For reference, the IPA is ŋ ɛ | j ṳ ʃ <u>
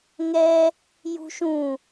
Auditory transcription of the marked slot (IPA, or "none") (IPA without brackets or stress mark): ũ